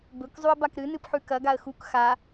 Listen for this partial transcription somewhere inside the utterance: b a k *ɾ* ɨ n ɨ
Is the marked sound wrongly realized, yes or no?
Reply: no